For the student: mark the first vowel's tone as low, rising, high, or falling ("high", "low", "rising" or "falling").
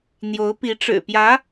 rising